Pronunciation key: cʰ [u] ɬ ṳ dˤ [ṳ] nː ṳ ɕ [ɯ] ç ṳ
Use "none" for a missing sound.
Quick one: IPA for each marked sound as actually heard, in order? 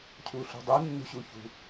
u, u, u

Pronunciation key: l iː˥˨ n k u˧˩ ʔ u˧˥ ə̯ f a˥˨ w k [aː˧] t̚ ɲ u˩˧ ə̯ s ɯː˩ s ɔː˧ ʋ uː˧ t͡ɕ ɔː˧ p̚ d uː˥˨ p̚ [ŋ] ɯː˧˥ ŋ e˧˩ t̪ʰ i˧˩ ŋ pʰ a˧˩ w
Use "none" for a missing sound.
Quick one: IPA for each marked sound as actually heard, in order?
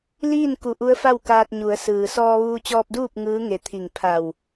aː˧, ŋ

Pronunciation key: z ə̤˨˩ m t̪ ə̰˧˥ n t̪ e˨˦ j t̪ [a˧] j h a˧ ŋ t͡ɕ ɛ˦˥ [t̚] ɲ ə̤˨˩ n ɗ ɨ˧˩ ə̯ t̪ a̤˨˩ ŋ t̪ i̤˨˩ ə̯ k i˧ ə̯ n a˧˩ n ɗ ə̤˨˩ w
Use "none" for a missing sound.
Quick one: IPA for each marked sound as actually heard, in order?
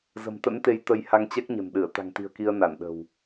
ə˧, k̚

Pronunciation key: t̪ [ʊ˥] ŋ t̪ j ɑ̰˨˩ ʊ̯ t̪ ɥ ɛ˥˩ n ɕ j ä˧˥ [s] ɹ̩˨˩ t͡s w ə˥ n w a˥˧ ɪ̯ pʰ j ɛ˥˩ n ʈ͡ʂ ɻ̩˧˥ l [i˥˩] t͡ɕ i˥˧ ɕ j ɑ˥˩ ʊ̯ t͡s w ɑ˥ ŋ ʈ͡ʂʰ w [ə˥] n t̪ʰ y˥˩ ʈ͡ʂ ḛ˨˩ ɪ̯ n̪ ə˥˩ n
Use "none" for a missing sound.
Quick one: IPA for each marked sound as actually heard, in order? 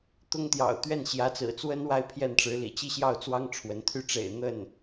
ʊ˥, t͡s, ḭ˨˩, ə˧˥

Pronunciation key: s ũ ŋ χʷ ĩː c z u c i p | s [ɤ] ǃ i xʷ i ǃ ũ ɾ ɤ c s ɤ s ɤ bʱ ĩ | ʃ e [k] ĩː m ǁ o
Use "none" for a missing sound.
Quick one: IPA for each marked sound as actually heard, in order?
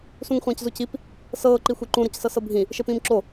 ɤː, p

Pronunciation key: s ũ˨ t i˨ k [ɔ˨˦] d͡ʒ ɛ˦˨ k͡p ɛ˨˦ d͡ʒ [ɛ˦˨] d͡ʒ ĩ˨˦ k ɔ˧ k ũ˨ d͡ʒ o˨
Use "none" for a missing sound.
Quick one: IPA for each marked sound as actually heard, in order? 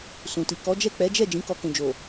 ɔ˨˦, ɛ˦˨

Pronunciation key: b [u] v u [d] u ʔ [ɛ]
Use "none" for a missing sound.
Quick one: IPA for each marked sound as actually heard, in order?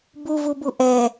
u, b, ɛ

